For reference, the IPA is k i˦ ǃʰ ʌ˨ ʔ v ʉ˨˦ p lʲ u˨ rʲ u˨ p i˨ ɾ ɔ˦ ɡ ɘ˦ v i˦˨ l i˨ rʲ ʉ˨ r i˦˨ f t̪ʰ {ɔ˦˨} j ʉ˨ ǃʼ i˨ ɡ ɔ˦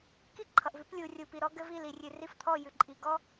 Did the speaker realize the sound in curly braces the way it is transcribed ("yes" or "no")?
yes